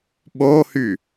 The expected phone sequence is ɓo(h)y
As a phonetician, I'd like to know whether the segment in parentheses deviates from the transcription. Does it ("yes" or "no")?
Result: no